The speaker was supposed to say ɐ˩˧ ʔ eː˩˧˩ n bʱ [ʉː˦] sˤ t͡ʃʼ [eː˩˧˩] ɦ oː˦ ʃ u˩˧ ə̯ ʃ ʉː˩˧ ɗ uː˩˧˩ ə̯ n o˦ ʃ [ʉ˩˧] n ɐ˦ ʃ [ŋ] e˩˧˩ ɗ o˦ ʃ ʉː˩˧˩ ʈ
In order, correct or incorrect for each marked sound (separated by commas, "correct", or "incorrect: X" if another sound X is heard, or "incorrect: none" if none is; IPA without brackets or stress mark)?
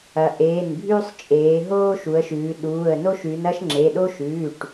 correct, incorrect: eː˩˧, correct, incorrect: ŋ͡ǁ